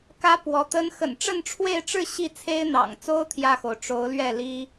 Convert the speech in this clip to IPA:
k ä˧˥ p w ɔ˧˥ t̪ ə˥ n x ə̰˨˩ n ʈ͡ʂ ə˥˧ n ʈ͡ʂʰ w e˥˧ ɪ̯ ʈ͡ʂ ɻ̩˥˧ ɕ i˥˩ t͡sʰ e˥ ɪ̯ n̪ ɑ̰˨˩ ŋ t͡s o˥ ʊ̯ t̪ʰ j ä˥˩ x o˩ ʊ̯ ʈ͡ʂ o˧˥ ʊ̯ l ɥ ɛ˥˩ l i˥

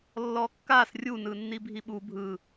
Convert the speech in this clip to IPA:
lː ɔ kː a s rʲ u n ɯ nː i bʱ i ɓ u bʱ ɯ

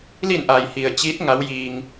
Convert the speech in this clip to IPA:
l i˧˩ n ʔ a˩ j h i˩ ə̯ t͡ɕ i˧˥ t̚ ŋ a˧˥ w j iː˧ ŋ

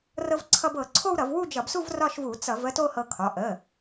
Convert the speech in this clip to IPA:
r ɤ˧ v ǀʰ ʌ˧ b ɤ˧˩˧ ǀʰ o˥˧ w ɾ ʌ˧˩˧ v w u˥˧ d͡ʒ ʌ˧˩˧ b s u˥˧ v r ɒ˥˧ ʃ v u˧˩˧ t͡s ʌ˧˩˧ v ə˥˧ t o˥˧ h ɤ˧ kʰ ɒ˩˧˩ ʔ ə˩˧˩

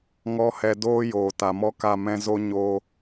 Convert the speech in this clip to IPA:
ŋ ɔ˦ h ɛ˧ d oː˦ j oː˨ t a˨ m ɔ˦ k a˦˨ m ɛ̃˧ z o˦ ɲ o˦

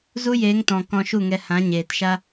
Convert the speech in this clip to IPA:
z u˦ j eː˨˦ ŋ t ɔ̃˨ k ɔ̃˧ ʃ u˦˨ ŋ ɛ˧ h ã˨˦ ɲ eː˨ t ʃ a˦

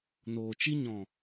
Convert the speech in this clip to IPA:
n oː˨ t͡ʃ i˦ ɲ ɔ̃˨

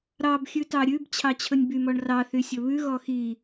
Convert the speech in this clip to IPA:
ɾ ɑ b xʲ ʉ t ɑ ɾʲ ʉ b t͡ɕʰ ɑ t͡ɕʰ ɵ nʲ b y m ɔ ɳ r ɑ θ y sʲ ɵ β ʉ ɣ ɔ x i

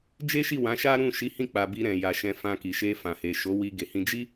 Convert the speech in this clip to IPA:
d͡ʒ e˦ ʃ i˦˨ w ã˨˦ ʃ a˦ ɾ ũ˦˨ ʃ i˨˦ h ĩ˦˨ k͡p a˨ b i˧ ɾ ɛ̃˨ j a˨ ʃ ɛ̃˧ f ã˧ k i˨ ʃ e˧ f ã˨ h e˨ ʃ o˨˦ w i˧ ɡ e˨ h ĩ˧ d͡ʒ i˦

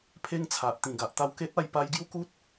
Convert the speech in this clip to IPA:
pʰ e˦ ŋ t͡sʰ a˨ ʔ t̪ ĩ˨˩ ɡ a˨ ʔ t̪ a˥˧ w k e˦ t̚ a˧ j p a˦ j ɡ j u˦ k u˦ t̚

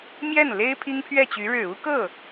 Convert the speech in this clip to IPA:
m j ɛ˥˩ n l e˥ ɪ̯ pʰ i˥ ŋ pʰ ɥ ɛ˥˩ t͡ɕ y˧˥ ɻ ɻ̩˨˩ u˥ k ɤ˥˩

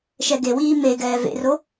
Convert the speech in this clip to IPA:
ʃ ɛ ɡ e w iː m e ɡ ɛː v ḛ r o

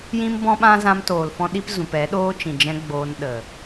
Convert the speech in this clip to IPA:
j ĩ˦ m b ɔ̃˦ ɓ ã˦ z ã˧ m t oː˨ l f ɔ̃˧ ɗ i˧ p z ũ˨ p ɛ˨˦ ɗ oː˦ t͡ʃ ĩ˨ d͡ʒ ɛ̃˧ ɡ͡b oː˧ n ɗ ə˨

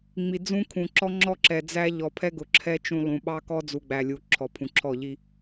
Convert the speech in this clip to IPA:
ŋ͡m i˨ d͡z ũ˦ kʰ ũ˨ ǁ ɔ˦ ŋ͡ǁ ɔ˦ ǁ ɛ˨ d͡z æ˦ ʎ ɔ˨ pʰ ɛ˦ ɡ ʊ˨ ǁʰ ɛ˦ t͡ʃ ũ˦ lˠ ũ˨ ɓ ɑ˦ k ɔ˦ d͡z u˨ ɡ͡b æ˨ lʲ u˨ ǁʰ ɔ˨ pʰ ũ˨ ǁʰ ɔ˦˨ ʎ i˦

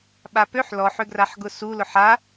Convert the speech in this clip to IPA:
ɓ a p ø ħ l ɔ ħ ʏ ɡ r a ħ ɡ ʊ s u l ʊ ħ a

